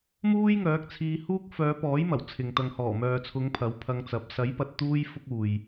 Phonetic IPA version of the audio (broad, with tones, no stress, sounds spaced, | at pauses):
m uː˥ j ŋ œː˨˥ k̚ t͡sʰ iː˧ h uː˥ k̚ f œː˨˧ p ɔː˨˥ j m ɐ˨˩ w t͡sʰ ɪ˨ ŋ t̪ ɐ˨ ŋ h ɔː˨˩ m œː˨ t͡sʰ ʊ˨˧ ŋ pʰ ɐ˨˥ w pʰ ɐ˧ ŋ t͡s ɐ˨˥ p̚ s ɐ˨˥ j p ɐ˨ t̚ t̪ uː˥ j f ʊ˥ k̚ uː˨ j